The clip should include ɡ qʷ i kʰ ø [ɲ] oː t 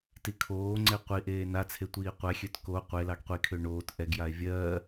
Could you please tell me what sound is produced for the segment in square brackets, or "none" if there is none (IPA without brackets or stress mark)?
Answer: ɳ